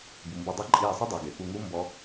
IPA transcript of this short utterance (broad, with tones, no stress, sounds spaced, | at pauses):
b u˩ m b ʊ˧˩ dˤ e˦˥ ǃʼ iː˧˩ sˤ ʊ˦˥ dˤ e˩ ɡ e˩ p u˧˩ ŋ u˦˥ m b ɔ˦˥